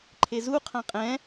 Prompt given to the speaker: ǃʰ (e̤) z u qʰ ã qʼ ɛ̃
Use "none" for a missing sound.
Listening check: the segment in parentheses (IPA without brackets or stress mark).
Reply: e